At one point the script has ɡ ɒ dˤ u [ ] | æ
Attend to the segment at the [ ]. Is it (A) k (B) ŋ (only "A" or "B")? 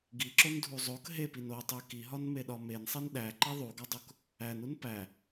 A